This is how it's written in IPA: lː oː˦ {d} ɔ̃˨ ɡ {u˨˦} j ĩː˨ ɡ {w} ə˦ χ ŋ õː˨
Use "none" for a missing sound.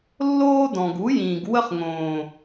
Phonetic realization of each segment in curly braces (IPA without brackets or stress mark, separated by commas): d, u˨˦, w